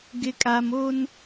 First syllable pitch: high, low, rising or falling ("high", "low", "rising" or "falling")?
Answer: low